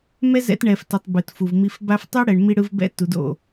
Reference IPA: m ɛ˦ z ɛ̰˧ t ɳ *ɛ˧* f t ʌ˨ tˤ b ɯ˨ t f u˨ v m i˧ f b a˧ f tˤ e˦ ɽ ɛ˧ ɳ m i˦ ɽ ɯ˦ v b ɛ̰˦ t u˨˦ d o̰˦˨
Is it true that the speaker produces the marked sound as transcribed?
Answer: no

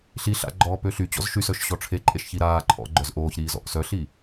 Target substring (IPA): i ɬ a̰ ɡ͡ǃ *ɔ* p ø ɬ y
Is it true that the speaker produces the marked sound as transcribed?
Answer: no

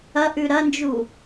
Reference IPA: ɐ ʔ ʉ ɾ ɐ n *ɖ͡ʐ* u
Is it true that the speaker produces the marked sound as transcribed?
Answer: no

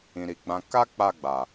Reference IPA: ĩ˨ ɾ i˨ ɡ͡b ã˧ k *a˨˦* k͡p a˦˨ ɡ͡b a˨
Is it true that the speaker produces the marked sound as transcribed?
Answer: no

